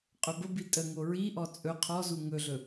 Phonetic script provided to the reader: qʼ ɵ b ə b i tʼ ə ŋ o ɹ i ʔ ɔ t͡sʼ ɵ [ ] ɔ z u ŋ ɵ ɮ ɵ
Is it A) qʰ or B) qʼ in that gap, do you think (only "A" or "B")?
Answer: A